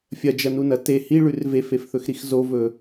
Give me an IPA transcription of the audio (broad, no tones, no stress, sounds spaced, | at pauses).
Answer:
fʲ ɐ d͡ʒ ɐ n u n ɐ t e h i ɭ ʉ r v e f e f θ ɵ x ɾ i x z o v ɵ